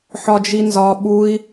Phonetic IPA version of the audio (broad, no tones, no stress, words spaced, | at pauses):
ħɒd͡ʒinzɒ ɓui̯